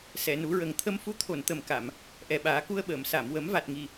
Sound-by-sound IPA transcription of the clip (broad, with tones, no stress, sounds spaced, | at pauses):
s ɛ˨˩˨ n u˨˩˦ ɹ ə˨˩ ŋ t̪ʰ ə˧ m f u˧˥ t̪ʰ o˨˩˨ n t̪ ə˨˩ m k a˨˩˨ m | ʔ ɛ˨˩ ɓ aː˨˩˦ k u˧ ə̯ ɓ əː˨˩˨ m s a˨˩˨ m w ə˨˩˦ m v a˨˩ t̚ ŋ i˨˩